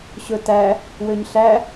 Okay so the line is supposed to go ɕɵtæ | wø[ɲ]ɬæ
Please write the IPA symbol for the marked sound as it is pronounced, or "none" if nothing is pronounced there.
ɲ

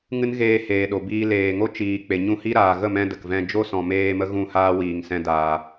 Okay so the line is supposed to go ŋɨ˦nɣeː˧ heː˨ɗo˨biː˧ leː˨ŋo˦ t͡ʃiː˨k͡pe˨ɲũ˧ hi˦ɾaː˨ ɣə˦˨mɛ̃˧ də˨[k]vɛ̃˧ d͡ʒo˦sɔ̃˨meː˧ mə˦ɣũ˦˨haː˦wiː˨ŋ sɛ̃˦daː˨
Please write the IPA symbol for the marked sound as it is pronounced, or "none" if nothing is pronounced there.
k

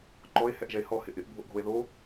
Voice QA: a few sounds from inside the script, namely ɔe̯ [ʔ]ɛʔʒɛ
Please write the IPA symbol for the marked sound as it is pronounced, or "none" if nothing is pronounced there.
h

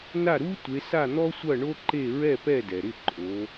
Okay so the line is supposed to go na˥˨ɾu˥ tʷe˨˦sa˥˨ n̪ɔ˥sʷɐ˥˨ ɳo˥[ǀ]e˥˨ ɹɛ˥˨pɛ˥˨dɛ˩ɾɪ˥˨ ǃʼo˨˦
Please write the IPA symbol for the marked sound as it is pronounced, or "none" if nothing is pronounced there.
ǃ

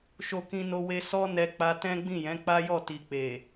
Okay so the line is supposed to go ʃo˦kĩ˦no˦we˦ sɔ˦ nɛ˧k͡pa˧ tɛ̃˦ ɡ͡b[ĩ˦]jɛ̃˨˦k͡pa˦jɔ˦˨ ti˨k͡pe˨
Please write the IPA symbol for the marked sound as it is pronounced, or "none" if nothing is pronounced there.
ĩ˦˨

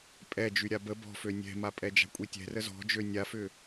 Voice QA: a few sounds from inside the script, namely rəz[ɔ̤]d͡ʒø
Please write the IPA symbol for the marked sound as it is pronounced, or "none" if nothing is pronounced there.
ɔ̤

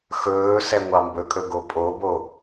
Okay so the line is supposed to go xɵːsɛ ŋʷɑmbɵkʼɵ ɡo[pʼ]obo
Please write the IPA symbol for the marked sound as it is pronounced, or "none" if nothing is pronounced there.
pʼ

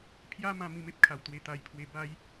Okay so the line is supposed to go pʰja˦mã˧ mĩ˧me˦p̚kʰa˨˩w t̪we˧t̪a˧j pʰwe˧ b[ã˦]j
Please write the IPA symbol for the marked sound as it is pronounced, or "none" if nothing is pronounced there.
a˦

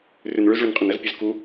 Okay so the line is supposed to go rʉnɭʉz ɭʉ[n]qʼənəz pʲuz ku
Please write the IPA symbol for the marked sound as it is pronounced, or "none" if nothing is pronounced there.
n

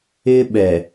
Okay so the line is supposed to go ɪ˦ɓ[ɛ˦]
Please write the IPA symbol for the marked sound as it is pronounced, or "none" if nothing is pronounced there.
ɛ˨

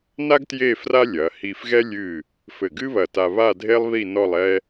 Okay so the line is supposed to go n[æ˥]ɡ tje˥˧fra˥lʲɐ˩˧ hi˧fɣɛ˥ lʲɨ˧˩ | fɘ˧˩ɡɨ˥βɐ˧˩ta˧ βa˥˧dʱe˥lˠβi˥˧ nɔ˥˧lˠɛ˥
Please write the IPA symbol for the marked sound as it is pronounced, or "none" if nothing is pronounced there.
a˥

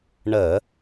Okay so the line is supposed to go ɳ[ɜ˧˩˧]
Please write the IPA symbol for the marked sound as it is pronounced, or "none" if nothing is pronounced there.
ɜ˧˩˧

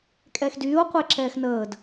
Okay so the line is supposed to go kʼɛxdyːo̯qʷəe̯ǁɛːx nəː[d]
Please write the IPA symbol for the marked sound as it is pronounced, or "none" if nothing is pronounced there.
d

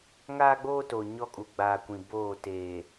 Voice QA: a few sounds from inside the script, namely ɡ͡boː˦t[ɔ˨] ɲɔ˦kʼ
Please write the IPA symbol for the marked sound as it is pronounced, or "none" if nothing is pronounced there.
o˨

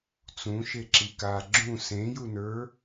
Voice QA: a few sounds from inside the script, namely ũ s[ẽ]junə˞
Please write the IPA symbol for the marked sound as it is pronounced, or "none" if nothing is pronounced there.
ẽ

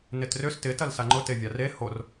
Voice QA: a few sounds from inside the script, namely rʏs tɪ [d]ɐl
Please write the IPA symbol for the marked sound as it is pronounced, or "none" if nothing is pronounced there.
t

